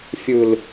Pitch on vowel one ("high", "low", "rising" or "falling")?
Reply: low